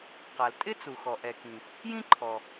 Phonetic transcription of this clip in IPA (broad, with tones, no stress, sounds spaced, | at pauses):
q a˩ l tʼ ɪ˥ t͡s u˩ x ɔ˩ ʔ ɛ˩ k ĩ˩ | j ĩ˥ ǃʰ ɔ˩